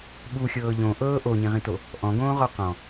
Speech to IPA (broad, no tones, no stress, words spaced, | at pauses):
ɓuxʲɤː ʎõ ʔɤː ʔoɲĩʁĩto | ʔɔ̃ɡõːʁɔ qɔ̃